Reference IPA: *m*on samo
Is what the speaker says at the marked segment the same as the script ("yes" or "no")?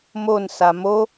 yes